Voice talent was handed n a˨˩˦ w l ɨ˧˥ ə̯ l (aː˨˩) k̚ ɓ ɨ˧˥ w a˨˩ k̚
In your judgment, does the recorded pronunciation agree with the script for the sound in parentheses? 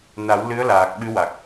yes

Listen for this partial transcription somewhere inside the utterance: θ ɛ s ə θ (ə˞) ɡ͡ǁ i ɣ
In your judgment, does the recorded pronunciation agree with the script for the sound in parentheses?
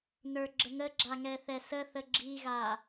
no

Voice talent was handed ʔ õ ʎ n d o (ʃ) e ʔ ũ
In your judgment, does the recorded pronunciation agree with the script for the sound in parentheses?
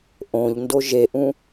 no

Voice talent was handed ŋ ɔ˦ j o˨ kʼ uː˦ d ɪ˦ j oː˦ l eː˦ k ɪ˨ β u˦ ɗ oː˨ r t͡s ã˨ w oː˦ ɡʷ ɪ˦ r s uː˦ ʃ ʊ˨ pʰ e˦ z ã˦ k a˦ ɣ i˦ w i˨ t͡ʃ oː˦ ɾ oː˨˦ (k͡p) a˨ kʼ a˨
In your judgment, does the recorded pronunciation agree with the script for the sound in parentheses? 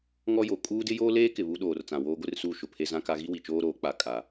yes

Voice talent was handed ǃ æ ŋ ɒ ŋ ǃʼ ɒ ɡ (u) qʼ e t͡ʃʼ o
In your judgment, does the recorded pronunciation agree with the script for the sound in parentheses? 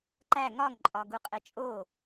yes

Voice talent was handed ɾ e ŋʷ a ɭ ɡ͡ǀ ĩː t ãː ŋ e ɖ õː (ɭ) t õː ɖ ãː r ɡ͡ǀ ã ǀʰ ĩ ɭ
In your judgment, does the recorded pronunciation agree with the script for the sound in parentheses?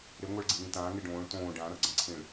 yes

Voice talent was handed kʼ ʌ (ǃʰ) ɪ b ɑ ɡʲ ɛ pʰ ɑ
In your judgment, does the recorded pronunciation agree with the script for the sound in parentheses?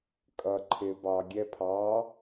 yes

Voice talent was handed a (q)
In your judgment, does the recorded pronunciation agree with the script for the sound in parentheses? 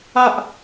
no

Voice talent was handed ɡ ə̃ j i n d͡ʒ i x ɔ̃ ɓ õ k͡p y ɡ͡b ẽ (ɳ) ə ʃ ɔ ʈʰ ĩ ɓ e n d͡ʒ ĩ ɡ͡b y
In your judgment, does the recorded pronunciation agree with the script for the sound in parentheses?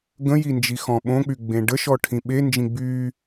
no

